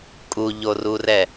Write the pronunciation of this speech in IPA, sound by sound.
kʼ u ʎ o r u r ɛ

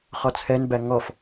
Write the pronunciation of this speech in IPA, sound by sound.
χ ɔ t͡sʰ ɛ n b æ ŋ ɔ f

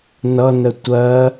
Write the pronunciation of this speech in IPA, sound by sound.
n ʌ n ə tʷ ɜ

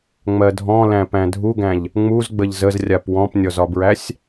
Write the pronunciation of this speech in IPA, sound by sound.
ŋ͡m ɜ dʱ ɔ̃ l æ̃ p æ̃ dʱ u ɡ æ̃ ʎ | ŋ͡m u z ɡ͡b ə ʎ z ə z rʲ a p w ɔ̃ p nʲ ɔ z ɒ b ɹ æ sʲ

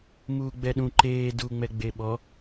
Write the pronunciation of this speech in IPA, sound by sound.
m uː ɡ͡b ɛ ɗ ũ ǃ eː d uː ŋ͡m ɛ ɡ͡b e ɓ ɔ

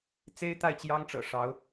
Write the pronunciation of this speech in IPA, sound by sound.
t͡s e˥ ɪ̯ t̪ a˥˩ ɪ̯ t͡ɕ j ɑ˥ ŋ ʈ͡ʂ ɤ̰˨˩ ʂ ɑ˧˥ ʊ̯

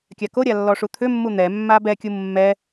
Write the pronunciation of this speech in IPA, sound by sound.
kʲ a k o ɾʲ a lː ɔ ʂ u t̪ʰ ʏ mː u n̪ ɛ mː a b ɛ kʲ u mː ɛ

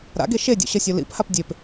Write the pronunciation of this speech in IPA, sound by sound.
ɾ a̰ ɡ e ʃ e dʲ o̰ ɕ ʌ sʲ o l ḭ p h a p dʲ e p

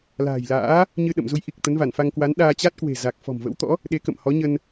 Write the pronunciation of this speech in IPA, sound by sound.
l a̤ː˨˩ j l a̰ː˧˥ | ɲ ɨ˧ ɗ ə̰˧˨ m z u˨˦ j ʔ i˨˩ k̚ t̪ ə˨˦ n v a˧˩ n f a˧ ŋ k w a˨˦ n ɗ aː˧ t͡ɕ a˦˥ t̚ k w e̤˨˩ z a˨˩ k̚ f ɔ̤˨˩ m v ə̰˧˥ w t̪ ɔ̰˧˥ | ɗ e˨˦ k ə̰˧˨ m h ɔ˨˦ ɲ ə˧ n

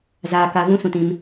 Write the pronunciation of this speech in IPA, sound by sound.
z aː˧ k a˧ v ũ˦ s ũ˨ t ĩ˧ m

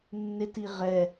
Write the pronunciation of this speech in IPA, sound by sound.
nː ɪ t i ʁ ɛ

